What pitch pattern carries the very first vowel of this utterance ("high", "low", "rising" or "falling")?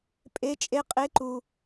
rising